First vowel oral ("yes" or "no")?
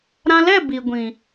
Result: no